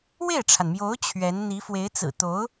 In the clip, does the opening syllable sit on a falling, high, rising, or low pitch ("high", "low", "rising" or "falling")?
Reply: falling